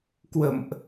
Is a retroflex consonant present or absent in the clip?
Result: absent